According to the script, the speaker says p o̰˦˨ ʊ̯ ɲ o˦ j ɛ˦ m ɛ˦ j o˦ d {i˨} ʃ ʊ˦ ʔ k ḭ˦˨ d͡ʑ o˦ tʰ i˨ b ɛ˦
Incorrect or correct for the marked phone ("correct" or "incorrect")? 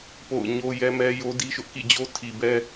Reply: incorrect